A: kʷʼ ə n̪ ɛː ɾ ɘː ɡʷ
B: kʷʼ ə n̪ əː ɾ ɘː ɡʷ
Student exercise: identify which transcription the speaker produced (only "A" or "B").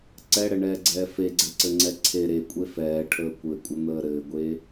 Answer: B